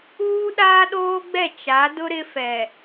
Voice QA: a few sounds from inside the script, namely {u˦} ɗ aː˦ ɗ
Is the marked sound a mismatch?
yes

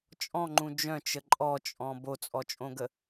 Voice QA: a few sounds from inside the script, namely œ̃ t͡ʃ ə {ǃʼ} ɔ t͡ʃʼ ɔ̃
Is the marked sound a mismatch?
no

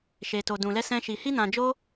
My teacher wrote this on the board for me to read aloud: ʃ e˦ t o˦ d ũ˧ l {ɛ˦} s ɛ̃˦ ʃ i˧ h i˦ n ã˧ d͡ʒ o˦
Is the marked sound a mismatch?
no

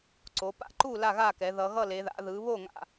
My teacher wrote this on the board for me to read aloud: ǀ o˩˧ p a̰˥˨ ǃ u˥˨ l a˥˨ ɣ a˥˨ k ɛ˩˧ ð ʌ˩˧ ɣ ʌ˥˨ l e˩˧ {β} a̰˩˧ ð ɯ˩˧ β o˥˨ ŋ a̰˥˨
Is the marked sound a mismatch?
yes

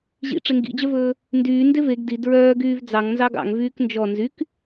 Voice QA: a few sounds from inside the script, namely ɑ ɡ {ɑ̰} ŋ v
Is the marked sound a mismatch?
no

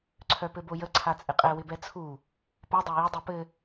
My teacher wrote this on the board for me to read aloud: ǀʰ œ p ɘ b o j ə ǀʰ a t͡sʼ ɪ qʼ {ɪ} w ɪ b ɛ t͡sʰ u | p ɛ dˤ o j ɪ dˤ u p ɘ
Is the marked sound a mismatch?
yes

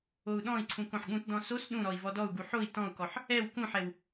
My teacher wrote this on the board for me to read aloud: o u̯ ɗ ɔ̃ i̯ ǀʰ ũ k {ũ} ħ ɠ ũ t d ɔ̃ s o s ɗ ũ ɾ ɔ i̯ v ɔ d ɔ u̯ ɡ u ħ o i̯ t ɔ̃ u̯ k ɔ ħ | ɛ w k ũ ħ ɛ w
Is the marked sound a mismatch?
yes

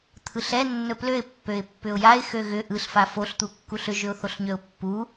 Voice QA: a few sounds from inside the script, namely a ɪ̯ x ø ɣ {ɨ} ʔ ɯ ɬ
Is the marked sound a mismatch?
yes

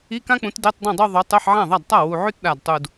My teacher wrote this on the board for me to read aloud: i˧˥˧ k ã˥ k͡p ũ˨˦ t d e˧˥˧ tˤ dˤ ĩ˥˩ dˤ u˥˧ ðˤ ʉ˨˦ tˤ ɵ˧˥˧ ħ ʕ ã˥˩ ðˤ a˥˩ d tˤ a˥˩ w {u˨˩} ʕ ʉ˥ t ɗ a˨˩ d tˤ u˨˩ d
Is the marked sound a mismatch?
no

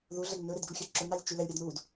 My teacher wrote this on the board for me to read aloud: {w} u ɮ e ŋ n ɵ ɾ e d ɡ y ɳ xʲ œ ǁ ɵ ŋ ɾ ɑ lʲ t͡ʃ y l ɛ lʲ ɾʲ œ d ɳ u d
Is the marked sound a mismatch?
yes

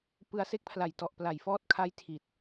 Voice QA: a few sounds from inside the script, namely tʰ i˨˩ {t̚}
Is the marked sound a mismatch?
no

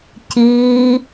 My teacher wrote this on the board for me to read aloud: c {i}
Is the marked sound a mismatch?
yes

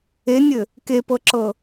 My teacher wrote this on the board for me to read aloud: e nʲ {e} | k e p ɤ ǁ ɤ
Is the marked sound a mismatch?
yes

